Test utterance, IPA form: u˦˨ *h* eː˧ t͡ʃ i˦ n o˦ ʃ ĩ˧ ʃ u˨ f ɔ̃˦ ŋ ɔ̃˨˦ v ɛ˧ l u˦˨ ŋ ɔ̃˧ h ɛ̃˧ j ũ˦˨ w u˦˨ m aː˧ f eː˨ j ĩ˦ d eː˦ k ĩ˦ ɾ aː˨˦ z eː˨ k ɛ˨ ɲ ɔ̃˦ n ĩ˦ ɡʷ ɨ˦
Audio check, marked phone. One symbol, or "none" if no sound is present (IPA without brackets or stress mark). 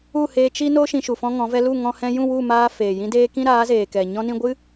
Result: h